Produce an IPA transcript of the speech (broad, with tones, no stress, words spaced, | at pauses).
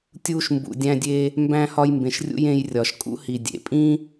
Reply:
tʲuː˧ʃmbṵ˩dʲæ̃˧dʲe˧ | mbæ̃˧hɒ˧j mbẽ˩ʃrʲṵ˧j ẽ˧jrʲɒ˩ʃ kʼṵ˥hi˩ dʲḛ˩pʼĩ˥